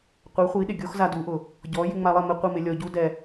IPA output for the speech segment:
qʷe˩˥χʷi˩˥ɗɪ˩ ɡʲo˥xza˧du˩˥ʔʊ˩ | ɟɔ˩˥ jɪ˧ŋ͡ma˧lˠɛ˥˩ mɪ˥˩ qʷi˥˩mɪ˧ lʲɔ˧ɟu˥dɛ˧

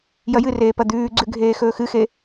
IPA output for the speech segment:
jɐjɨreː pɐd̪ʉːɡ͡ǀʉ ɡʱeːxɵːxɨxe

